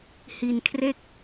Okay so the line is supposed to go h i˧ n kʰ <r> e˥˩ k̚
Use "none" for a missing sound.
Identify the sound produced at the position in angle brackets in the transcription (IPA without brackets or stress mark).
r